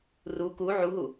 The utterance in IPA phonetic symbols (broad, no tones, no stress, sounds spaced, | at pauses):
r u k u ʕ u ɦ u